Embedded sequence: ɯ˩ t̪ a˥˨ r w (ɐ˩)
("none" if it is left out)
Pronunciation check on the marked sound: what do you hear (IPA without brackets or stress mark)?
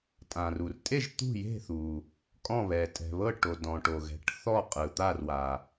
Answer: a˩